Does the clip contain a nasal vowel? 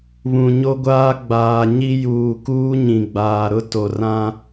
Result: yes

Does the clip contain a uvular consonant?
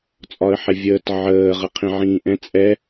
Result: yes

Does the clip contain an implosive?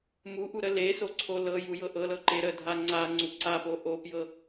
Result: no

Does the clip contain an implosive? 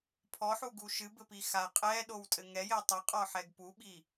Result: yes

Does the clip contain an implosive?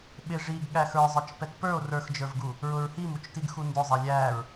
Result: yes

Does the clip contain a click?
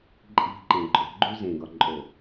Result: yes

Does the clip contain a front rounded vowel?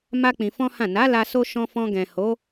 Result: no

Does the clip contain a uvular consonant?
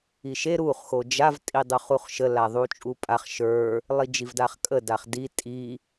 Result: yes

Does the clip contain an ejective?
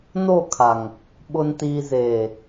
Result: no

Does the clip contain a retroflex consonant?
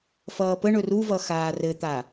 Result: yes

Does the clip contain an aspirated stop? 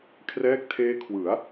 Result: yes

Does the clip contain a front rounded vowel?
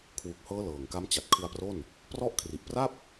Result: no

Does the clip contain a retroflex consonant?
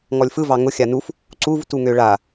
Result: yes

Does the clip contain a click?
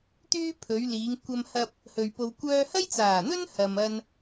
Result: no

